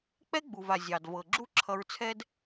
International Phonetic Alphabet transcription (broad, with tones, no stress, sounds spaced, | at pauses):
k͡p ɛ˦ ɡ͡b u˨ v a˨ zʲ ɑ˨ d v ɤ˨ ɡ͡ǁ u˦ ǁʰ ʌ˧ ɹ t͡sʰ ɛ˦ d